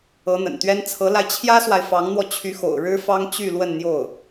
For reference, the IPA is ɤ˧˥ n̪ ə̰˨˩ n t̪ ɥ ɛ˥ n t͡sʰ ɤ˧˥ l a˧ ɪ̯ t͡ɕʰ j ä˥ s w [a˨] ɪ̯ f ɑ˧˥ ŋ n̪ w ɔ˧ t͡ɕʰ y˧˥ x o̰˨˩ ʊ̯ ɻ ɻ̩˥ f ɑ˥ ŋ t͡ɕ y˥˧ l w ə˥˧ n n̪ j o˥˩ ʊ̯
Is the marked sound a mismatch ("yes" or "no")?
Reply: no